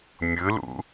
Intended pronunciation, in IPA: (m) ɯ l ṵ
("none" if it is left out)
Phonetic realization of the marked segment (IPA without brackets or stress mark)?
mʲ